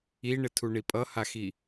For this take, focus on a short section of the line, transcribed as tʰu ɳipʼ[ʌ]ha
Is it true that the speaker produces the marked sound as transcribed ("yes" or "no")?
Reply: yes